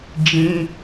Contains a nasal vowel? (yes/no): yes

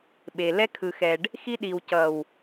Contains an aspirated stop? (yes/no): yes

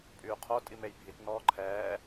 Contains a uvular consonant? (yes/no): yes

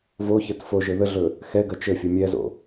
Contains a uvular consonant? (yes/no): no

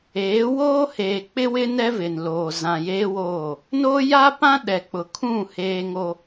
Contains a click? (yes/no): no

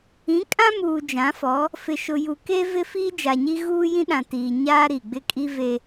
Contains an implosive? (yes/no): yes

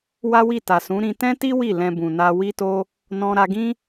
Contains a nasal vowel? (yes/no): yes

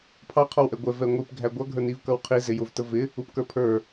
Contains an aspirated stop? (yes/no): yes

